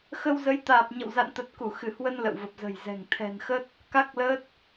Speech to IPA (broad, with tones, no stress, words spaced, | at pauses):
xə˧wzə˨˦j t̪aː˨˩p̚ɲə̰˧˨wza̰˧˨nt̪ə˨˩t̚ ku˧˩ xɨ˧˩hwə˧n lə̰˧˨wvə˨˩p̚zə̤˨˩jzɛ̤˨˩ŋ t̪ʰɛ̤˨˩nxə˦˥t̚ | ka˦˥k̚lə˦˥t̚